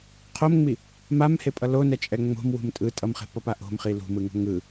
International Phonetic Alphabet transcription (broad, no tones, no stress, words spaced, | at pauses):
qʰomŋ͡mi | mamhepʼʌ lonɛt͡ʃʼɛ ŋ͡mo̤mwṳm tʼɯ tʼʌmχe̤pʌpa ʔo̤mχi lṳmɯŋo̤ ŋɯ